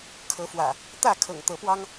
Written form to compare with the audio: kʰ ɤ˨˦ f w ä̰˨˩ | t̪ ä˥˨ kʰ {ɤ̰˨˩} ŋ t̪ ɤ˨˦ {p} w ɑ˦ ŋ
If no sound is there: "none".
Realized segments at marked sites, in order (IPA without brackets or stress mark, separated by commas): ɤ̰˨˩, p